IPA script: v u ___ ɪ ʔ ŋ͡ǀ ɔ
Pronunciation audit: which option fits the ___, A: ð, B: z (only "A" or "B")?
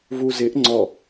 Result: B